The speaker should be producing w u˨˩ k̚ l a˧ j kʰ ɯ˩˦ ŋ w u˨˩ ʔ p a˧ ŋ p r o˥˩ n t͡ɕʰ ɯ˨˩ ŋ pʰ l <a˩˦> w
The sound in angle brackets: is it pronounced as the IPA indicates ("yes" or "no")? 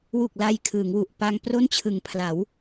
yes